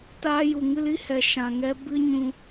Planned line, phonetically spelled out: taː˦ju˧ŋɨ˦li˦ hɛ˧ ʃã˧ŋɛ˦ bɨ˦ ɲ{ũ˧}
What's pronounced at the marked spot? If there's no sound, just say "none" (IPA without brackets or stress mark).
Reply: ũ˧